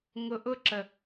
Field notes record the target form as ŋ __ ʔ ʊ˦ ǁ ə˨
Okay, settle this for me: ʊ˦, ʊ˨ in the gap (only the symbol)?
ʊ˨